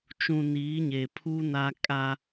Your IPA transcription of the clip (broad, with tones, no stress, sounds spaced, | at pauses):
t͡ʃ ũ˨ n iː˨˦ ɲ e˨ pʰ u˦ n a˦ kʼ a˦